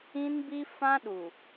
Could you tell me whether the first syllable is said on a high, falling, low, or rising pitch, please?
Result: high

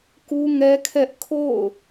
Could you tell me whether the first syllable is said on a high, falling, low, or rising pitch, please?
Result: high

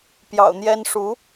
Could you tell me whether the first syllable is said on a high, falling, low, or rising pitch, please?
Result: low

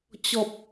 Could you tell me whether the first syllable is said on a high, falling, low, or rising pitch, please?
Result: high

